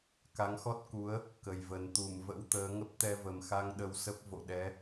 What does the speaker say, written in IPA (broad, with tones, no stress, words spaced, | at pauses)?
ka˨˦ŋxɔ˦˥t̚ku˨˦ə̯ | kə˨˩jvə˨˩n t̪u˧˩mvə̰˧˥wt̪əː˨˦ ŋə˦˥p̚t̪ɛ˧və˨˩mxa˧ŋ ɗə˧wsə˦˥p̚vo̰˧˨ɗɛ˨˦